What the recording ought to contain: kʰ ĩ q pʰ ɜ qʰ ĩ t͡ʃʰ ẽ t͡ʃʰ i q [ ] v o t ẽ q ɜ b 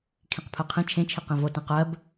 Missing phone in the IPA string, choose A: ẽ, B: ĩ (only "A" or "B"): B